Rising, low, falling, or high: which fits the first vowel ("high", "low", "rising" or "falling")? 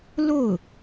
falling